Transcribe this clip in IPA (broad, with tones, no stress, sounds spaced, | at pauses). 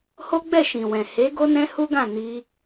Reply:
h o˦ ɡ͡b ɛ˦˨ ʃ ĩ˨ w ɛ̃˨ h e˨˦ ɡ o˦ n ɛ̃˦ h u˦ ɡ ã˦˨ n i˧